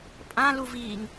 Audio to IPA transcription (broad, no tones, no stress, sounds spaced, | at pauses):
pʼ ã l u v iː ŋ